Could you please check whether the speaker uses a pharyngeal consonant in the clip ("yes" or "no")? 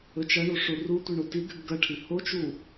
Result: no